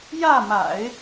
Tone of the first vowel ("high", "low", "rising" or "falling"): falling